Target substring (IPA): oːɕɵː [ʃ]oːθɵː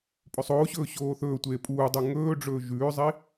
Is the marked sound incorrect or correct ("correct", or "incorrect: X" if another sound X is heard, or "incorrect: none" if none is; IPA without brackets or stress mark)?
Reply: incorrect: ɕ